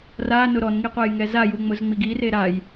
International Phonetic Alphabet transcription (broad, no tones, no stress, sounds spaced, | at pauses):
r a n ʊ ɾ ɔ n ŋ i qʷ ɛ j ŋ ɛ z a j u ŋ͡m ʊ z ŋ͡m i ɡ i r e ɾ a j